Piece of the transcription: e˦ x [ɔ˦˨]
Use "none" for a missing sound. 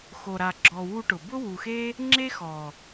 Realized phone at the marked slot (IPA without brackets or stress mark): ɔ˨